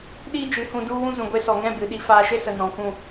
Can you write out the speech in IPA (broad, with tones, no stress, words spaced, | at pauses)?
ɗiː˦ d͡ʒɨ˨˦hũ˧du˦ wũ˦zũ˨ ɡʷe˧sɔ˨ŋɛ̃˦˨ bɨ˨ɗi˧faː˧ ʃe˦sə˨ nɔ̃˨kũ˦˨